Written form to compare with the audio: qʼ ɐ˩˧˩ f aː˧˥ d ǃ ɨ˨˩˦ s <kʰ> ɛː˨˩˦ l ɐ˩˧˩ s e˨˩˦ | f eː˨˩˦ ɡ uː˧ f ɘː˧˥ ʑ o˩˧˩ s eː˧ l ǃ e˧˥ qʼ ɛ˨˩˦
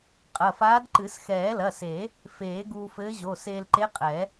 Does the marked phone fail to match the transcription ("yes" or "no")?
yes